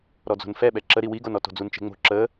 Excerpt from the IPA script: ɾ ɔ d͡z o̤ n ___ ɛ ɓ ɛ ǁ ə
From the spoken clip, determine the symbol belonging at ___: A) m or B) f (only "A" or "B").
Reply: B